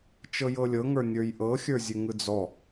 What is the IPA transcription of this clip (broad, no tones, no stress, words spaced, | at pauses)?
t͡ʃɤjɤlʲɤŋə˞ nʲə˞jʔɤxʲə˞ zʲʉŋɯd͡zɔ